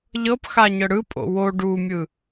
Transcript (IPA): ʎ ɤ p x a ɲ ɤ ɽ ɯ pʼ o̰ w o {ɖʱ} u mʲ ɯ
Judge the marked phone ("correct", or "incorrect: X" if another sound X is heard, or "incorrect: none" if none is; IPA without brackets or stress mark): incorrect: ɖ